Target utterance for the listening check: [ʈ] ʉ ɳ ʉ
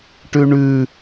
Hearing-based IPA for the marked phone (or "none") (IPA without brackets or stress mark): ʈ